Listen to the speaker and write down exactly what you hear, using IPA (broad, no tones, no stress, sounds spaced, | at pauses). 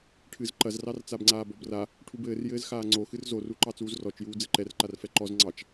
ʈʰ ɨ z ǃ ɐ z r ɑ r t͡s a b ŋ͡ǀ aː b ɔ b r a | ʈʰ u b ɘː r j ɘː z x aː ŋ͡ǀ o x ɨ r z o r u ǃ ɑ t͡s uː z r ɔ t͡ʃ j uː d͡z ɘ ǃ ɛ r ǃ a r f ɛ ǃ ɔ z ŋ͡ǀ ɑ t͡ʃ